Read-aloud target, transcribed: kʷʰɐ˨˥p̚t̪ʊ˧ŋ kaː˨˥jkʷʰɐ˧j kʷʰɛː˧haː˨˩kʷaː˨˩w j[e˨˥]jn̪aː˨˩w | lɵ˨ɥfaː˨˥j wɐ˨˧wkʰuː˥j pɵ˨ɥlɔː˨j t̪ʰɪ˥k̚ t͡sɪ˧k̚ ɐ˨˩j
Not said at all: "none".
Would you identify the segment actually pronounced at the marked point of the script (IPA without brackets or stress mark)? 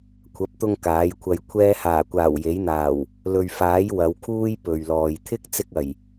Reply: e˨˥